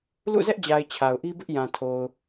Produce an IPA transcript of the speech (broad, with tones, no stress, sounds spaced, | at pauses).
l ṵ˦˨ z ɛ˦ ʔ d͡ʑ a˨ ɪ̯ t͡ɕʰ a˨ ʊ̯ ʔ i˦ b ɪ˦ ʔ j ã˨ tʰ o˨ ʊ̯